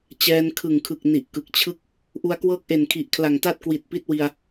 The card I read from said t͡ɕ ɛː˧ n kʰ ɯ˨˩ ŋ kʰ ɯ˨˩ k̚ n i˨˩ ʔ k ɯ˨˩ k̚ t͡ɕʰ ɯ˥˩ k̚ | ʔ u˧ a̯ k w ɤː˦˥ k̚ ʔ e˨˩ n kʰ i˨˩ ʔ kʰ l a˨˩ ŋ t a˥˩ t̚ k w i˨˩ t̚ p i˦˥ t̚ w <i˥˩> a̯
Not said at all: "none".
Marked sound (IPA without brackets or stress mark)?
i˧